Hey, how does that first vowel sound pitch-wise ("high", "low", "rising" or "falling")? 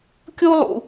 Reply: high